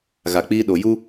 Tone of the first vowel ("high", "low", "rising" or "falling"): low